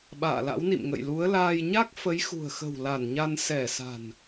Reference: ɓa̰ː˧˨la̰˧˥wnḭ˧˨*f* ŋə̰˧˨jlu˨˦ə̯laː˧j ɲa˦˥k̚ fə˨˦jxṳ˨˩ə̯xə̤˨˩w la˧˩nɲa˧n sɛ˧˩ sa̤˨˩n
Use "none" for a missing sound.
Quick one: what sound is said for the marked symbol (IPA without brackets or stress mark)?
m